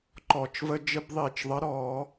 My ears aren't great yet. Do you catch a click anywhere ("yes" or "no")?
yes